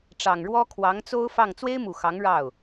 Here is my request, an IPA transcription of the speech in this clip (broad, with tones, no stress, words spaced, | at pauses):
ʈ͡ʂɑ˨˩ŋɻwɔ˥ kʰwɑ˧˥ŋt͡so˥ʊ̯fɑ˥˩ŋ t͡swe˥ɪ̯mu˨˩ xɑ˧˥ŋɻɑ˥˩ʊ̯